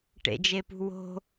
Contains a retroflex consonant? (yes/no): yes